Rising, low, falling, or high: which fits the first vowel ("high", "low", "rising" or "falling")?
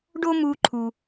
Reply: high